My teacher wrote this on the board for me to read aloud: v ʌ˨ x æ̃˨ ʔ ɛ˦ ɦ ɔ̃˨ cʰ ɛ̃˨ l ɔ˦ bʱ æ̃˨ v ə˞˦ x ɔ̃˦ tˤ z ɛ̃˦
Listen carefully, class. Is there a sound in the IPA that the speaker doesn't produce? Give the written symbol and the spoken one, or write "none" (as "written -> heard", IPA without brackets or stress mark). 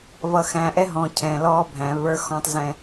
none